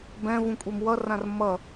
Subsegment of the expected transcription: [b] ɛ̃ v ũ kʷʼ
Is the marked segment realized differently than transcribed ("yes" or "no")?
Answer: no